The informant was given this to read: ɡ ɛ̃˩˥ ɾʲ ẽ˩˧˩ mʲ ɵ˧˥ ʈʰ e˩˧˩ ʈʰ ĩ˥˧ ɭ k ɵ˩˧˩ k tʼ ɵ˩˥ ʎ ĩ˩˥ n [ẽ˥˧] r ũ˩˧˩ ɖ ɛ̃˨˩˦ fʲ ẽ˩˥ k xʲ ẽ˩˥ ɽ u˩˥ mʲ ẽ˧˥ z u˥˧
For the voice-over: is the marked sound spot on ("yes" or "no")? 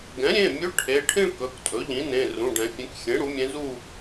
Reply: no